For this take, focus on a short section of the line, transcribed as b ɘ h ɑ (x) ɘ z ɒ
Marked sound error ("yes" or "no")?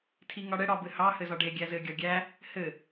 yes